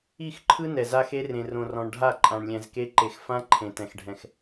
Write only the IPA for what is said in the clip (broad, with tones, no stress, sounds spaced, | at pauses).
i˦˨ x ǃʰ ɯ˦ n ɛ˨ z a˦ x e˦ r ẽ˨ r õ˨ r ɔ̃˨ ɳ ɖʱ a˦˨ ǃʼ ã˨ ɳ lʲ ɛ̃˨ z k e˦ ǃ e˨ x f ã˦ ǃʰ ẽ˨ t ɛ̃˨ x ɖʱ ɛ̃˨ x